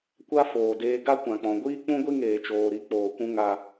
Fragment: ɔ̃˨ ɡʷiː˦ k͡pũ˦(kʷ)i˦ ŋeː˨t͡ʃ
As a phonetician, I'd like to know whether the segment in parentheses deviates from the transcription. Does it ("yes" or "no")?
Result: yes